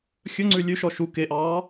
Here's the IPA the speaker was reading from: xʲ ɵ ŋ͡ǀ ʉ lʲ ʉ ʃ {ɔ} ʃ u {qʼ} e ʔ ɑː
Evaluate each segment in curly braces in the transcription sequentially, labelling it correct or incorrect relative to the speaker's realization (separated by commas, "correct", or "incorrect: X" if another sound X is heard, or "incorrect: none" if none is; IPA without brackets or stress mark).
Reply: correct, incorrect: k